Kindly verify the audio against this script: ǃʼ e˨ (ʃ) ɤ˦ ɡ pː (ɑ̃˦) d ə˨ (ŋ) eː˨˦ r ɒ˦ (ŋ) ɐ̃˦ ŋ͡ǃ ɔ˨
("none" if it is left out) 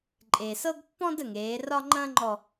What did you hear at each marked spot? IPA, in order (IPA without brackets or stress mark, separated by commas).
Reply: s, ɔ̃˦, ŋ, ŋ͡ǃ